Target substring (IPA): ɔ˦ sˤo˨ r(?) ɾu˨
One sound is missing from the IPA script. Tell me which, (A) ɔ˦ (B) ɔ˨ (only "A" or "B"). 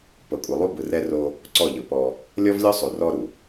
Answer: A